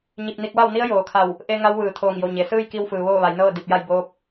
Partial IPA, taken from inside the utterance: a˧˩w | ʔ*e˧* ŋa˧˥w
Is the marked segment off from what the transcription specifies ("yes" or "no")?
no